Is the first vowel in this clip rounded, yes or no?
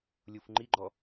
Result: yes